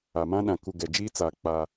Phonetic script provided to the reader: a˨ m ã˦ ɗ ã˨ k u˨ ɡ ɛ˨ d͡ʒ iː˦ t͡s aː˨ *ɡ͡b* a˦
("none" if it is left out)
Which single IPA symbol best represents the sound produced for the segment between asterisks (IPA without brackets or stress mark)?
k͡p